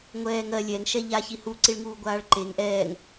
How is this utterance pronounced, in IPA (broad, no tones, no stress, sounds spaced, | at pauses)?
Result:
ŋʷ ɛː ŋ ɜ lʲ ɛ ŋ ʃ ɛ ʎ a ç i h u ǀ i ɭ ŋ uː ɡʷ aː ɭ ǃ e ŋ ʔ ɛː ŋ